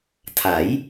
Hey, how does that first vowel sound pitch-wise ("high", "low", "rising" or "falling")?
rising